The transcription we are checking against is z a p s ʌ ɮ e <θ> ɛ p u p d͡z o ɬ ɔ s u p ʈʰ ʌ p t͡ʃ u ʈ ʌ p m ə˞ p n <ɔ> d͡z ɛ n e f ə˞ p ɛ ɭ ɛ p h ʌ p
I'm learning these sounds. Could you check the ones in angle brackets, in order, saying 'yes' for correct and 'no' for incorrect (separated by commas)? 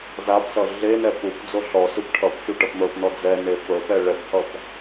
no, yes